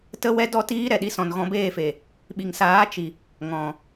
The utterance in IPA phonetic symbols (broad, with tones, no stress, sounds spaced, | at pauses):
t ə˦ w ɛ˦ d ɔ˦ t iː˦ ɾ ɛ˨ ɗ i˧ s ɔ̃˨ n ɣ ɔ̃˧ b eː˦˨ f e˨ | ɓ i˨ ŋ s aː˨˦ t͡ʃ i˨ | ŋ ɔ̃˨